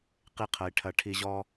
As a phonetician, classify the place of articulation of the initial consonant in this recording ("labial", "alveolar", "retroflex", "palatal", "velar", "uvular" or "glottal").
uvular